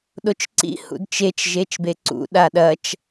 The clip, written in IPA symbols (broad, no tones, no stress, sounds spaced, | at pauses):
ɗ o t͡ʃ ǀ ḭ h ṵ d t͡ʃ e t͡ʃ ʒ e t͡ʃ b e ǀ ṵ ɗ a ɗ ɐ t͡ʃ